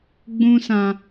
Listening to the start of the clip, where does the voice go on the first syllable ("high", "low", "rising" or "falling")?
high